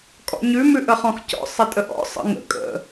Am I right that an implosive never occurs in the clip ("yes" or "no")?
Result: yes